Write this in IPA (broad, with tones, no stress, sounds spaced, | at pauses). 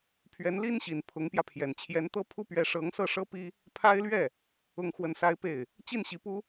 pʰ ɥ ɛ˧˥ n l i˥ n ɕ i˨˩ n pʰ ʊ˧˥ ŋ p j ä˧ pʰ j ɛ˨˩ n t͡ɕʰ j ɛ˧˥ n t̪ ɤ˥ pʰ u˥ p ɥ ɛ˧˥ ʂ ɤ˧˥ ŋ s ɤ˥˩ ʂ ɤ˥ p i˥ | pʰ a˥ ɪ̯ l ɥ ɛ˥˩ | ʊ˥˧ ŋ x w ə˥˩ n s a˥ ɪ̯ p e˥˩ ɪ̯ | t͡ɕ i˥˩ n ɕ i˧˥ p u˥